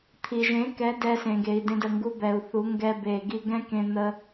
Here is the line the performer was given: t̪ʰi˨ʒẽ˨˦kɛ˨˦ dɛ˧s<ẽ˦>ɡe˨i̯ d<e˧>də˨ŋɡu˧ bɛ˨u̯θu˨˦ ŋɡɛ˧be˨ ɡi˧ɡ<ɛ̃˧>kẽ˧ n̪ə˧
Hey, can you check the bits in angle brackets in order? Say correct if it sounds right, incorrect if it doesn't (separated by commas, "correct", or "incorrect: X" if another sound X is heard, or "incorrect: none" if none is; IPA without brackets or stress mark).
incorrect: ẽ˨, incorrect: ẽ˧, incorrect: ɛ̃˦